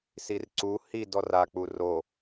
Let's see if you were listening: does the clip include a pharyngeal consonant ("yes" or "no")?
no